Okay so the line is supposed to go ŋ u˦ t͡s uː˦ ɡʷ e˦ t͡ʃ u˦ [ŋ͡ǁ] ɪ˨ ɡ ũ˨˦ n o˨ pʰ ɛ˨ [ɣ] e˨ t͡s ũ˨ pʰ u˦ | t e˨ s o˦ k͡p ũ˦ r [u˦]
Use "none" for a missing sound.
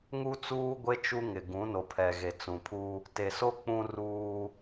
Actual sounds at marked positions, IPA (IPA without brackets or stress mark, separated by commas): ŋ, ɣ, uː˦